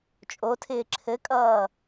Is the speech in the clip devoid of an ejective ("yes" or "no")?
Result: no